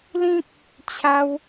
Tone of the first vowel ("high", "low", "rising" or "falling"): high